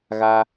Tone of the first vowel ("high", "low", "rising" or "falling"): low